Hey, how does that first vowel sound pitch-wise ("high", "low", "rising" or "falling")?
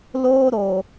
high